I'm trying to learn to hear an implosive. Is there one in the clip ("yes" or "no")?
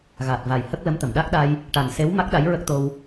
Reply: yes